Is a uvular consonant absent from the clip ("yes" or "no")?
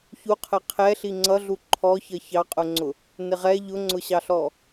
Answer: no